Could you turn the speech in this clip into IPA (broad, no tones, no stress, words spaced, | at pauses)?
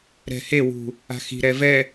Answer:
ɾɛ̤hewṳ | a̤xi̤ɾɛ vɛ